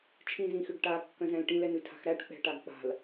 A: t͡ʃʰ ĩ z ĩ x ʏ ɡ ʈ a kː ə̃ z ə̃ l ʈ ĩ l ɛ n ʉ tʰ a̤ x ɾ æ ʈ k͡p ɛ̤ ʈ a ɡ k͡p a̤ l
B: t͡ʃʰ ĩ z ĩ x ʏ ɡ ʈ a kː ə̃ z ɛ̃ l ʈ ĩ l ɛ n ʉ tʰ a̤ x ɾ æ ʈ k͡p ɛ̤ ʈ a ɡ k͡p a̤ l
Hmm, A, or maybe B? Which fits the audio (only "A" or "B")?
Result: B